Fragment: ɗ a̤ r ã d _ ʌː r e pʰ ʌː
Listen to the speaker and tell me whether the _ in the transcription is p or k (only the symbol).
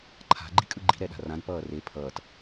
p